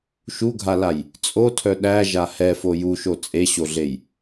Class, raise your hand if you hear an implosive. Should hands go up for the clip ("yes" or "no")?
yes